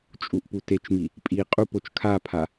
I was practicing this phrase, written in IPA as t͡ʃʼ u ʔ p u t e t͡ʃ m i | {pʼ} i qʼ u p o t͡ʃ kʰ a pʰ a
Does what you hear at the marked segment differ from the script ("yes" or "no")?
no